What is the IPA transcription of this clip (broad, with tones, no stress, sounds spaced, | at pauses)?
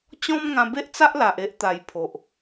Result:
t͡ɕ ɔ̃˦ m ŋ ã˧ b e˦ ʔ t͡s a˦ ʔ l a˨ ʔ e˦ ʔ t̪ a˨˩ j pʰ o˨ ʔ